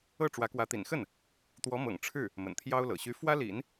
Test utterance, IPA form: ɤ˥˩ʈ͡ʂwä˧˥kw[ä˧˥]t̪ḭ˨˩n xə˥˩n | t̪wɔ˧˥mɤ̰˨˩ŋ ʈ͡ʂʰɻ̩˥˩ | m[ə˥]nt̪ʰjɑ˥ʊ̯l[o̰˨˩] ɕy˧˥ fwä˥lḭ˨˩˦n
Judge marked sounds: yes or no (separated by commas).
yes, no, no